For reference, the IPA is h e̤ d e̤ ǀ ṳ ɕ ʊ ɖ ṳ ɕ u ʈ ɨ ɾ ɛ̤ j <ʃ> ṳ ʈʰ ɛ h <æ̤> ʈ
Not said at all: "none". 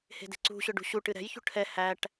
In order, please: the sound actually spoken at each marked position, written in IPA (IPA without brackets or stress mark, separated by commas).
ç, æ